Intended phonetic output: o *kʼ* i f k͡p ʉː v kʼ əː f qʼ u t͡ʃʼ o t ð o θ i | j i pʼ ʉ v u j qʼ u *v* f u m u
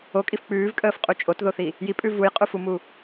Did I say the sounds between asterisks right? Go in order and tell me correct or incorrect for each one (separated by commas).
correct, incorrect